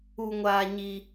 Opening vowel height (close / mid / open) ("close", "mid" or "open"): close